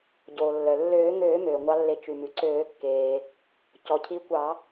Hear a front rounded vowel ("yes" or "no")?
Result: yes